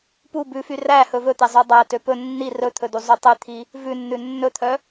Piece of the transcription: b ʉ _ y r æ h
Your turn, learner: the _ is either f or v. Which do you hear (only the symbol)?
f